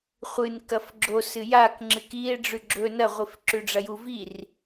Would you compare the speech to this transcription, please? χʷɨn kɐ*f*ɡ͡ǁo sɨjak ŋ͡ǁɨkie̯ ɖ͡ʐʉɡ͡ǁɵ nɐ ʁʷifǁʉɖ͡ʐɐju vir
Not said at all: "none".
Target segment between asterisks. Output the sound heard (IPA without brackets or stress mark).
f